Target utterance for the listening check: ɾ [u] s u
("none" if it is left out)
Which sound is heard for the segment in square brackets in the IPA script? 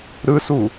ɯ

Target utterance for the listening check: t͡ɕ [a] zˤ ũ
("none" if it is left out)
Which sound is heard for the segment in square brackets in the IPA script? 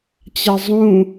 a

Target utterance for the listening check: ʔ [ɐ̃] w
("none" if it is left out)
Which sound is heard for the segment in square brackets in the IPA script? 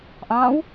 ɑ̃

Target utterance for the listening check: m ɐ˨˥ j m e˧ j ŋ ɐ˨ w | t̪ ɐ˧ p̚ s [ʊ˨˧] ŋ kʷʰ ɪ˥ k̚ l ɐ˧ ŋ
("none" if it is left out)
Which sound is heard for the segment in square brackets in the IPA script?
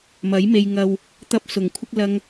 ʊ˨˩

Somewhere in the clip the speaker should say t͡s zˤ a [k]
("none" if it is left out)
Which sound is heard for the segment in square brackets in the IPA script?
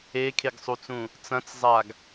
ɡ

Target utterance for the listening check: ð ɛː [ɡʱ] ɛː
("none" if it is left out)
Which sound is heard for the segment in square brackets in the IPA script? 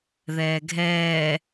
ɡʱ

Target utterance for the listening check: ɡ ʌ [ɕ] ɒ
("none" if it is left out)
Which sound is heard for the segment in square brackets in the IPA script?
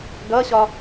ɕ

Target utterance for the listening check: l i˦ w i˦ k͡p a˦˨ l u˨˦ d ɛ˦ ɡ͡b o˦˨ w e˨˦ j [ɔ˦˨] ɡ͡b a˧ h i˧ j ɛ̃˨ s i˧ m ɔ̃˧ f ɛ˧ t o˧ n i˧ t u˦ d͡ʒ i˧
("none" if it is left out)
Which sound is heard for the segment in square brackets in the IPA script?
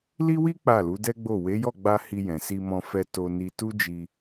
ɔ˦˨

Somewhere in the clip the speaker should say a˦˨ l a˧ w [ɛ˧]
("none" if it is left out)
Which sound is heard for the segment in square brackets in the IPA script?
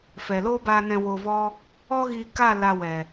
ɛ˨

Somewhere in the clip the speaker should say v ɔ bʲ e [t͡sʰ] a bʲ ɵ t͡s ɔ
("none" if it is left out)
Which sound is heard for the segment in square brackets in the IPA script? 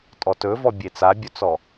t͡s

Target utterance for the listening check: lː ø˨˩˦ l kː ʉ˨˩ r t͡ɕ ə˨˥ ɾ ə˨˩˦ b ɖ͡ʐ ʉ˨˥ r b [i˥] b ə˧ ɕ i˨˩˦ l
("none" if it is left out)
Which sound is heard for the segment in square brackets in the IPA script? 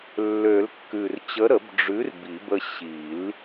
i˨˩˦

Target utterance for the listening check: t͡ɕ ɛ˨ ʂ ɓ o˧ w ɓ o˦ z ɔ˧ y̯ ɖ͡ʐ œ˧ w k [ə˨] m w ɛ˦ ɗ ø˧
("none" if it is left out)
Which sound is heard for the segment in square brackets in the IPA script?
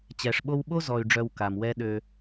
a˨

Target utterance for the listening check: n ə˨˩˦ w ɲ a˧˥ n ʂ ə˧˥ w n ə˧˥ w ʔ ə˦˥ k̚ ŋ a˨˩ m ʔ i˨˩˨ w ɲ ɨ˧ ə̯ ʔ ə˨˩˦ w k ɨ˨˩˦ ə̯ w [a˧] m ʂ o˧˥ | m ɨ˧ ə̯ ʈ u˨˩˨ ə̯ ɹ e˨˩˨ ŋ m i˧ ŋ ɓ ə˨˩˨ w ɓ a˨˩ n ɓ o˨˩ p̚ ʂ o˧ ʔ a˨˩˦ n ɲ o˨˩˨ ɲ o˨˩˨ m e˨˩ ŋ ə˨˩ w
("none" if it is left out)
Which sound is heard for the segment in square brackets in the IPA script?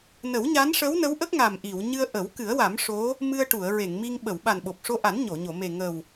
a˨˩˦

